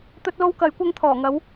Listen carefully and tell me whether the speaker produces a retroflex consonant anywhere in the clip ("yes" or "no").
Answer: no